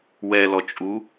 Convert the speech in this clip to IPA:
wɛlɔt͡ʃʼu

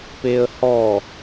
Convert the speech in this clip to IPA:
peə̯hɔ

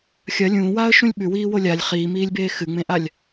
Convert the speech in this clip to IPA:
xʲɐ lʲũːwaːə̯ʃũlʲ ɓʉwiːwo lʲalʲ χiːmiːlʲbeː xɨŋ͡mẽʔalʲ

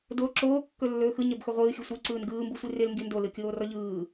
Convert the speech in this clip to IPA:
do ǁoːkːɵlːɵː xɯɲœbxɵ ʁʷɯːxʲɵ sʷiǀɯːn ɡɯːmbɯsʷi rɪlŋɡi ndolɯkʲoːrɔ ʎɯː

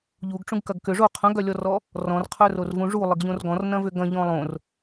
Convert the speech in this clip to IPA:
ʎuɡʈ͡ʂũɡkɐɡ kʏ ʐo qʰœ̃ɡœlʲɔrɔ | rɔ̃rqʰœrorvũ ʐulˠɪɡʎõr ɡɔ̃rnɐ̃vʏ ɡɐ̃ʎɔ̃ lˠõr

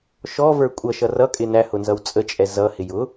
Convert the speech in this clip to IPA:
ʃɔvə˞ kʷʼʌ ʃʌrʌkʼɪ næ hʊnzʌwt͡sʼət͡ʃʼɛ zʌhɪ jʊ

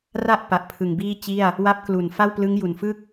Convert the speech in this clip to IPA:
ra˥˩ʔ pa˨˩ʔpʰɯ˨˩ŋbiː˥˩t͡ɕi˥˩a̯ | wa˦˥p̚klu˨˩n fa˥˩wplɯ˦˥ŋju˨˩nfɯ˥˩k̚

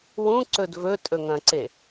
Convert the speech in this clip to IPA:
wũǀɵd vɵtʼɵŋɐ̃ǀe

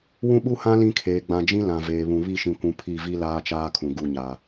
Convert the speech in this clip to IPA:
wũ˦ɓu˦hã˦ lĩ˦kʰeː˨ ɡ͡bã˨d͡ʒĩ˦ lã˨veː˨βũ˨ βi˦˨ʃĩ˨kʷũ˨ pʰi˦˨ vi˦ laː˦t͡ʃaː˦kʰũ˨ ɡu˦˨ɲa˨

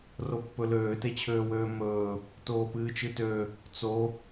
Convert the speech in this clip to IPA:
ropːɵløː tet͡ɕʰøːwøːmɵː | toːpɨːt͡ʃɨtø | t͡so

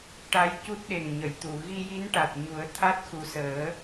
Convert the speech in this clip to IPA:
ʈa˧˥jcu˦˥t̚ ɗe˨˩ŋɲə˨˩˨jt̪u˨˩˨ ɣi˧ji˧˥nʈa˨˩t̚ɲu˨˩˦ə̯ t̪ʰa˦˥t̚ xu˨˩səː˨˩˦

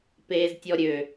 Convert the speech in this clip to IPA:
peːztʲɔɾʲø

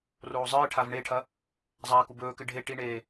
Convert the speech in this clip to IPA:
roːzˤɨːʈʰav ɳeʈʰɐ | zˤaːkubɵːkɨ ɖʱe ʈiɳeː

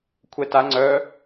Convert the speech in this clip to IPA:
kʷʰɛta ŋ͡ǀœ

